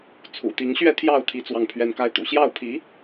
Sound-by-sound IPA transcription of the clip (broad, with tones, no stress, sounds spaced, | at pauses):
t͡sʰ ṵ˨˩ t̪ i˧˥ ŋ ɕ ɥ ɛ˥˧ t̪ʰ j ɑ˥˩ ʊ̯ t̪ʰ i˧˥ t͡s w ɑ˥˩ ŋ pʰ ɥ ɛ˥ n k a˥ ɪ̯ t̪ ṵ˨˩ ɕ j ɑ˥˩ ʊ̯ pʰ i˧˥